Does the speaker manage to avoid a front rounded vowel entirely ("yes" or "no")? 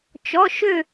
no